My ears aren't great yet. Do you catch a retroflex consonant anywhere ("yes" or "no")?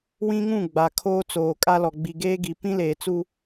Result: no